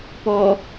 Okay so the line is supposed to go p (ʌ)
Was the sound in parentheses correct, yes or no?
no